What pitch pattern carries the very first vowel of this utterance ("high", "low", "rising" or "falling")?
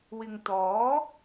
low